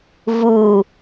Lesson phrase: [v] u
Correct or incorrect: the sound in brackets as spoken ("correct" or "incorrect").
correct